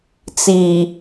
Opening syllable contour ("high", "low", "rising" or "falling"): low